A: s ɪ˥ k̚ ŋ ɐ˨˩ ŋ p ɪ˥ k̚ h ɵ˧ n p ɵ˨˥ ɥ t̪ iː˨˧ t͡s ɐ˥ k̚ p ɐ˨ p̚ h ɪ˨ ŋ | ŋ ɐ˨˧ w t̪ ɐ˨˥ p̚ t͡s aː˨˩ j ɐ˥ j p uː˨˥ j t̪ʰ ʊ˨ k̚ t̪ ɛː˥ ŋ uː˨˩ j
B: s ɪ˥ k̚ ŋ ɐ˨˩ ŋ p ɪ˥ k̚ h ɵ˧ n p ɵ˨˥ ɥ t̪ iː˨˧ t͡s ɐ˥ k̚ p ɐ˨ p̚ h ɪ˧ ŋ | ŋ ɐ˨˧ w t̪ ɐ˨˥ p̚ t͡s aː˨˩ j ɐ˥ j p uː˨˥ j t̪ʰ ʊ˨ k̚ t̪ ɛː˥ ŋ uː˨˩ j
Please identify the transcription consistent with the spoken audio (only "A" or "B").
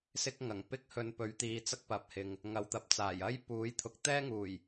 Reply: A